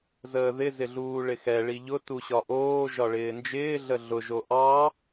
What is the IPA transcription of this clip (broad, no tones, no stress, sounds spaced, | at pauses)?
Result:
z əː ð ɪ z ɪ ɮ uː ɭ ɪ x ɛ ɭ i ʎ ʊ t u ɕ ɒ ʔ oː ʒ ɒ ɭ ɪː n d͡ʒ ɪː ɮ ə ɮ ʊ ʒ o ʔ ɑ